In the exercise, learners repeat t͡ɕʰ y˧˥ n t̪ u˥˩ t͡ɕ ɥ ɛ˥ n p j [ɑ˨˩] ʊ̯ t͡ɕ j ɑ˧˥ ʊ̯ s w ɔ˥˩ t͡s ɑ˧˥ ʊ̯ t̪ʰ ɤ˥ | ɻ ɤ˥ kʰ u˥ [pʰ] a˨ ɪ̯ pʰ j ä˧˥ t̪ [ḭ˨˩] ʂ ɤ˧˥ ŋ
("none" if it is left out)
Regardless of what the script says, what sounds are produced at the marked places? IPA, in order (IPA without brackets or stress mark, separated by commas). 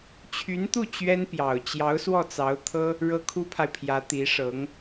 ɑ˨˩, pʰ, i˧˥